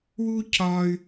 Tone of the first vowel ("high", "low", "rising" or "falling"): high